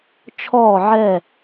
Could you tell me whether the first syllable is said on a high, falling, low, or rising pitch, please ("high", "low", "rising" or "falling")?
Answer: falling